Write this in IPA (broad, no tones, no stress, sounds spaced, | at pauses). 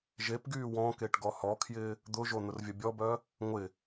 ʒ e p ɡ yː w ɔ̃ k e ʈ ɡ ɔ h ɔ kʰ j ɪː | d̪ ʊ ʒ o n̪ ʊ r vʲ ɐ bʲ ɔ b œ | ŋʷ ɪ